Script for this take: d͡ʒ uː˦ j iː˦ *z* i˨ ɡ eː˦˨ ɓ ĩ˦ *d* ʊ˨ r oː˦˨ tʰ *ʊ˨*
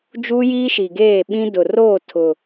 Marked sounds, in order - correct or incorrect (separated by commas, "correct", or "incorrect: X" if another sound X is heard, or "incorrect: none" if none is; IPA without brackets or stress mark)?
incorrect: ʃ, correct, correct